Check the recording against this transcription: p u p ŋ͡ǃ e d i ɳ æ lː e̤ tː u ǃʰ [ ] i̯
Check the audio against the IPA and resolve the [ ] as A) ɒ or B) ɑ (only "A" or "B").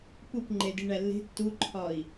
A